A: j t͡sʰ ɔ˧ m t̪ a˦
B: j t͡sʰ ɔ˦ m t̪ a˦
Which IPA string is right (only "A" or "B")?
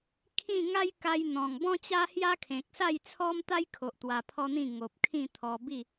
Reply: B